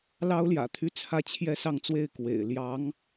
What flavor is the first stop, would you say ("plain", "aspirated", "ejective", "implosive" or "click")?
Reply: aspirated